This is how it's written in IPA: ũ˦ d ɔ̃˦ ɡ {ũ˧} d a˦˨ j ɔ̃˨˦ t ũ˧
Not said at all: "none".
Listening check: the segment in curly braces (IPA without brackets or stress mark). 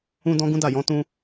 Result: ũ˦